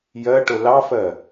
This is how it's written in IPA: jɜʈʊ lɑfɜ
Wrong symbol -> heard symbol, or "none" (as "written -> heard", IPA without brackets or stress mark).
none